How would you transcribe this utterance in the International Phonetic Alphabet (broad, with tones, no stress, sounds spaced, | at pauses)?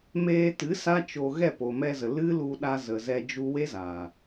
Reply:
m eː˧ t ɨ˨˦ s a˦ t͡ʃ o˧ ɣ ɛ˦˨ p o˨ m ɛ˧ z ə˨ l ɨ˦ l u˧ ɗ a˧ z ə˨ z ɛ˧ d͡ʒ u˧ w e˦ z aː˨